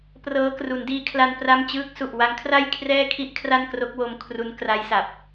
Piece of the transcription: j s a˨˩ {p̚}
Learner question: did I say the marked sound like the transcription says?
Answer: yes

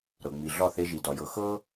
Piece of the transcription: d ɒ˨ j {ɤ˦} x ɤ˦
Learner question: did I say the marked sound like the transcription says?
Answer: no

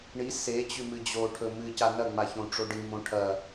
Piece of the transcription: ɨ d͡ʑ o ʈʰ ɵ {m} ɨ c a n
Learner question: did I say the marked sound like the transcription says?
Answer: yes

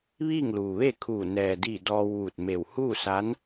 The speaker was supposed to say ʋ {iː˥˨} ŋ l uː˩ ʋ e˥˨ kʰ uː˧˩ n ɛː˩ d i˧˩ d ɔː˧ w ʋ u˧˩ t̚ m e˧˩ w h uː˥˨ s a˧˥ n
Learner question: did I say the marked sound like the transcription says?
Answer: yes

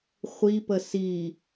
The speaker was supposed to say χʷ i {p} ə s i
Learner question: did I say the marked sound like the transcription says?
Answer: yes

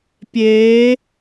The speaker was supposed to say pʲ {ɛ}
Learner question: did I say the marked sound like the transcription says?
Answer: no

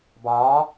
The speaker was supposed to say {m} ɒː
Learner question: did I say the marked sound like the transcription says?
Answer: no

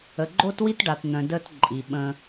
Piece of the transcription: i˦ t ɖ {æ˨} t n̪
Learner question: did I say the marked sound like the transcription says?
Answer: no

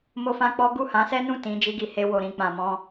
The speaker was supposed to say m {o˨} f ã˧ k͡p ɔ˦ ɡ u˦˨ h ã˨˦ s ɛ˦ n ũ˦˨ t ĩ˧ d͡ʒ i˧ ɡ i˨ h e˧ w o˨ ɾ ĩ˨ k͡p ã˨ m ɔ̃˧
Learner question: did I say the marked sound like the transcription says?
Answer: no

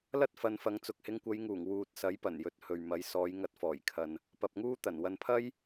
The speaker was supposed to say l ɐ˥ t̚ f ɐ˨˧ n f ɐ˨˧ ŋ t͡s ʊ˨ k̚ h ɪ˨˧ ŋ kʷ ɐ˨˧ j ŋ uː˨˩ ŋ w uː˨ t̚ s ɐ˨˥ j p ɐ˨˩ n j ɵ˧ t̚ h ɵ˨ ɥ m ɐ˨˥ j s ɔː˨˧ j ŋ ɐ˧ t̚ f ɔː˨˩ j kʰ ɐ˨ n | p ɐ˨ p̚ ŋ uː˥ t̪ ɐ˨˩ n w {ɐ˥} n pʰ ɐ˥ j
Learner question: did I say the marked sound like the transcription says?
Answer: no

